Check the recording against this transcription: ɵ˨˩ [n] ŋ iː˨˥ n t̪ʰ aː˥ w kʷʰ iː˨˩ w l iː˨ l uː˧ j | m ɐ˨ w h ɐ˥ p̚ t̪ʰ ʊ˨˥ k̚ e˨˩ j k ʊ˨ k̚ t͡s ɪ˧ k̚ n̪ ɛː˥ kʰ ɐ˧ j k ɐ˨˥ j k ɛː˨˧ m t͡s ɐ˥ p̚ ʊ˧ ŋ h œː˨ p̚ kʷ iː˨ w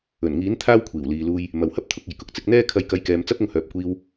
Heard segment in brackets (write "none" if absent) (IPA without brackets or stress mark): n